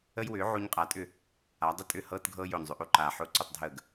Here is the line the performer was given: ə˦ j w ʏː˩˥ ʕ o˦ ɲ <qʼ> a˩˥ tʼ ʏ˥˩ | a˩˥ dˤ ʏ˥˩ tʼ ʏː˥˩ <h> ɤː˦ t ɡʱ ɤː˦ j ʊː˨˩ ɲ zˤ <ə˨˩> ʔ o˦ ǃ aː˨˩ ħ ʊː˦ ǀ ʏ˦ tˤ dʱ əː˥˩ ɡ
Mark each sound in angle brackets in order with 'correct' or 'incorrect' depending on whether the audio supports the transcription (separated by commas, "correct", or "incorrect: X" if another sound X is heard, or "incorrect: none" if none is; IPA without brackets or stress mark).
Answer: correct, correct, incorrect: ʏ˨˩